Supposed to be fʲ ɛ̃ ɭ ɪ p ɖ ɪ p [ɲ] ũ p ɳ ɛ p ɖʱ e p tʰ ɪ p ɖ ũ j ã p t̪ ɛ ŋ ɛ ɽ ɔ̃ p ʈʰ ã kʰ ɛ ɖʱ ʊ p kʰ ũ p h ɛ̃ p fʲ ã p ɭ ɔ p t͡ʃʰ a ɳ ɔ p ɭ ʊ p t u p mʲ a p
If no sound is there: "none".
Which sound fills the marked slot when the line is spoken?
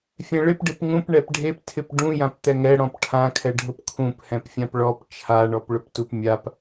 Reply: ŋ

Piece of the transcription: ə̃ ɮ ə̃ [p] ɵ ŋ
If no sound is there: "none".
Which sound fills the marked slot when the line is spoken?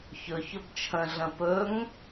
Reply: p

